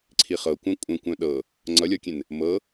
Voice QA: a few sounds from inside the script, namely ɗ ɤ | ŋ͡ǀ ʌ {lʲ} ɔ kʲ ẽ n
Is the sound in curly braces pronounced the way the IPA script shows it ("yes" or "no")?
yes